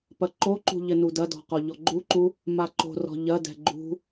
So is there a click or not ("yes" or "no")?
yes